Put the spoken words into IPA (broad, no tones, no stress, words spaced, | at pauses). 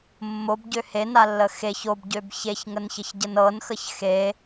mːobɟø henalːə xeç obɟøb çeçŋənçəçɟən ɤnxəç xe